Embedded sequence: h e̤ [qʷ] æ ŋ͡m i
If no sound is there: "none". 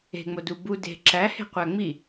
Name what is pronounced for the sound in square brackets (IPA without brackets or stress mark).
qʷ